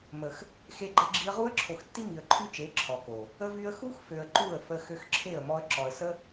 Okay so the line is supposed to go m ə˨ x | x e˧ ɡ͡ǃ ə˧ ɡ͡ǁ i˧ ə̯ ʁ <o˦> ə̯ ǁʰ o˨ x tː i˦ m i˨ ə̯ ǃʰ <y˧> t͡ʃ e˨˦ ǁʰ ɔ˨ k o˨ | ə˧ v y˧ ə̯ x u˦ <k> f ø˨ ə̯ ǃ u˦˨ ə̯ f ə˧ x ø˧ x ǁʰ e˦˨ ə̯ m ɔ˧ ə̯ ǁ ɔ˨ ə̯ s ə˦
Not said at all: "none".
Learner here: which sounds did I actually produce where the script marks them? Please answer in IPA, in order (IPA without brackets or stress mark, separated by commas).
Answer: u˦, y˦, x